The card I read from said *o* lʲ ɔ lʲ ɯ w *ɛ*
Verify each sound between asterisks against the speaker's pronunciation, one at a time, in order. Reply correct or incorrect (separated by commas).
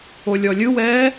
correct, incorrect